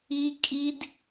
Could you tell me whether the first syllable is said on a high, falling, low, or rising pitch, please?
high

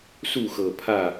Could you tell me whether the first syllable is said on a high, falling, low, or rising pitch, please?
falling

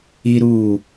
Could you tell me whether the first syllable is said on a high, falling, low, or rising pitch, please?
high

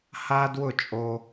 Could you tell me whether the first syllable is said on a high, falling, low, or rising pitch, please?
high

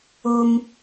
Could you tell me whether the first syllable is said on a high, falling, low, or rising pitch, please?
high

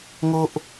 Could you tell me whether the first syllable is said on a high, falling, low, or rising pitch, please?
high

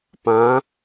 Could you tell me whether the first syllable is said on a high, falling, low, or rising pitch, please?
rising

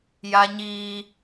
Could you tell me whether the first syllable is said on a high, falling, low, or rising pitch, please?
high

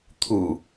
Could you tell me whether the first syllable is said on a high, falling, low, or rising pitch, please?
low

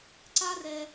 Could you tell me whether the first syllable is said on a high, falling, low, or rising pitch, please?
high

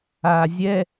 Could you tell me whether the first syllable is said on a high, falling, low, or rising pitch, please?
low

